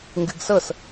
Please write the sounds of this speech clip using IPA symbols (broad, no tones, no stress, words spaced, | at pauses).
ŋɡɨɡsɤs